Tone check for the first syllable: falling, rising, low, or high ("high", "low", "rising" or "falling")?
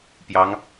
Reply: rising